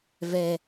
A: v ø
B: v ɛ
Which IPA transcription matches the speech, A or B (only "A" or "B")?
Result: B